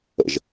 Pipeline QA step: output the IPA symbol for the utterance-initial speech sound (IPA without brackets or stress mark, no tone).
ə̰